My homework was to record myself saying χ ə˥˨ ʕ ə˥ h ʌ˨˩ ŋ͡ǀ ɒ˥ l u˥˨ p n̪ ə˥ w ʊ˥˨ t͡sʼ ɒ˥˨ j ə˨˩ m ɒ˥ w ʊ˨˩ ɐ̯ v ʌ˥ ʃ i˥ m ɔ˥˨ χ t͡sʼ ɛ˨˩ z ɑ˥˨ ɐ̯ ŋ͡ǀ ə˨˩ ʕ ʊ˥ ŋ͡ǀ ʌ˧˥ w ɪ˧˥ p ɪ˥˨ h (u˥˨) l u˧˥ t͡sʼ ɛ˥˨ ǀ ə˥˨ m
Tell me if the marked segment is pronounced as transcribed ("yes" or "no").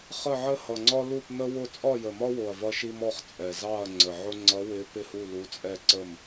yes